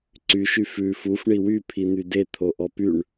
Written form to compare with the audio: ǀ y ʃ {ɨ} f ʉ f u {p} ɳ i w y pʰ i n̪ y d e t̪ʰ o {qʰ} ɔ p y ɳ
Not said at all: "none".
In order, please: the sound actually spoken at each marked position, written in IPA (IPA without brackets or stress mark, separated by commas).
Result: y, f, ʔ